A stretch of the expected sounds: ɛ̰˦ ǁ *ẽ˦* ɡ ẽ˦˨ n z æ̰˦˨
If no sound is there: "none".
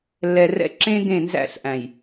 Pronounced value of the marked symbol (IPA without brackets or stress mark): ẽ˦